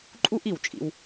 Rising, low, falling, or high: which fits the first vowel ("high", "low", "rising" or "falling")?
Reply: high